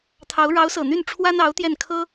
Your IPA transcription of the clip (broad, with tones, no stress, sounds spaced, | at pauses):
t̪ʰ ɑ˧˥ ʊ̯ ɻ ɑ˧˥ ʊ̯ s ɤ˨˩ n̪ y˥˩ n ʈ͡ʂʰ w a˥ n ɑ˧˥ ʊ̯ t̪ j ɛ˥˩ n kʰ ɤ˥